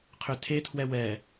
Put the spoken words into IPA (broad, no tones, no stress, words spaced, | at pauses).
qʰʏtʰetʰwɛ wɛ